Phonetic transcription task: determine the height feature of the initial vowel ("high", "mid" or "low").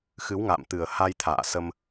high